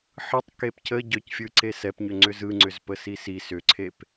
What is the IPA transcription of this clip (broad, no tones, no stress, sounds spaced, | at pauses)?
ħ ɯ tˤ k e p cʰ ə ɟ œ c fʲ ɯ ǀ e s ɛ p ɲ ʏ ŋ͡ǀ ʏ z ɯ ŋ͡ǀ ʏ z p ə s i s i s ʏ ǀʰ e p